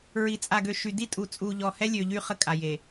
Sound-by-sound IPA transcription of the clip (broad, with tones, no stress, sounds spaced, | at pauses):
ɹ i˨ t͡sʼ a˨ ɡ ø˨ ʃ y˨ d i˦ tʼ u˨ t͡sʼ uː˨ ʎ ɔ˨ h ɛ˦ lʲ ø˨ ʎ y˦ χ ə˦ kʼ a˨ j e˨